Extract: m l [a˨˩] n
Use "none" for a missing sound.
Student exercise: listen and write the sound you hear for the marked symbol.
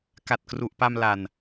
a˨˩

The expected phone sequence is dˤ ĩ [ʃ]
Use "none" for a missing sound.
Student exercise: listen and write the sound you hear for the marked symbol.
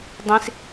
s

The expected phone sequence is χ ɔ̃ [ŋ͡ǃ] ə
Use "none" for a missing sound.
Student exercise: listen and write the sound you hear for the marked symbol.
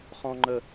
ŋ͡ǃ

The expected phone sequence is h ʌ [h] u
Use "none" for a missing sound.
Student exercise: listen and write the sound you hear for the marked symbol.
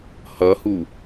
h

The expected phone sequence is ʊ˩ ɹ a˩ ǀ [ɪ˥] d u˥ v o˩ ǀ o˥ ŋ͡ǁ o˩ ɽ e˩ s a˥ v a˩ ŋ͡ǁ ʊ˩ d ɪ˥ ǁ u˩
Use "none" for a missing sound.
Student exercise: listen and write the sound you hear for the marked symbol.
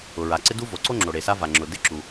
ɪ˥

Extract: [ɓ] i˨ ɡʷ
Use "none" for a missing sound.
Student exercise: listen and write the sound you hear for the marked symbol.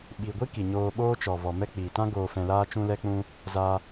ɓ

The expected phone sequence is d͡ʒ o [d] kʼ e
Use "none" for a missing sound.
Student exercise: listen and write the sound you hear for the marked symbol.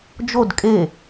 d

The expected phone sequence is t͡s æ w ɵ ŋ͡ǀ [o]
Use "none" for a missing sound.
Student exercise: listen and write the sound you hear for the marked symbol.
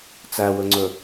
ɵ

